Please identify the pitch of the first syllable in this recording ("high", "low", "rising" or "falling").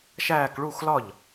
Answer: falling